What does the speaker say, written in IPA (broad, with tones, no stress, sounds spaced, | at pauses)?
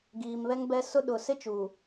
ɡ iː˨ m β ɛ˦ ŋ b ɛ˦ s ʊ˦ ɗ ʊ˨ s ɪ˦ t͡ʃ uː˨